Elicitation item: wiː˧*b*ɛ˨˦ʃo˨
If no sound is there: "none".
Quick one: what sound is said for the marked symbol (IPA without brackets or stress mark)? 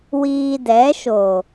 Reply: d